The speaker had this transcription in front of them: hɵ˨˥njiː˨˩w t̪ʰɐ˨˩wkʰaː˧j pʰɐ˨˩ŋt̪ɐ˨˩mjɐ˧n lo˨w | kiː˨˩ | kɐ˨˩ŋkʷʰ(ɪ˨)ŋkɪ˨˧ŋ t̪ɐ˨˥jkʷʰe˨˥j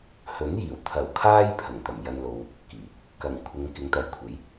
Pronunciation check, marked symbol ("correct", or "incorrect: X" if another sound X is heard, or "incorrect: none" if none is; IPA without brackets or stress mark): incorrect: ɪ˨˧